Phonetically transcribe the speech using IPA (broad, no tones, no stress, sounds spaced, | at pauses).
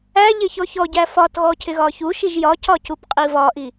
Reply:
æ ʎ ɪ ç ɔ ç ɔ ɟ æ f ɒ t ɣ ɔ cʰ ɪ ɣ ɒ ç u ʃ i ʒ j ɒ c ɒ c u p qʼ i v ɒ ʔ i